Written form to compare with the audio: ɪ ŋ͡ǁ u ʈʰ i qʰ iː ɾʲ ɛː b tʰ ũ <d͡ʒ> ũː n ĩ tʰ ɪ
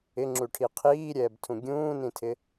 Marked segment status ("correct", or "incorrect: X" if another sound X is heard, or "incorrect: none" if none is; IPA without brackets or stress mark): incorrect: ɡʲ